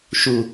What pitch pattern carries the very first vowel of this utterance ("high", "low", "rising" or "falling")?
low